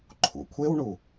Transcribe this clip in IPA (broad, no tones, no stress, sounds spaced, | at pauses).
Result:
ǃʰ ṵ kʷʰ e w ɳ u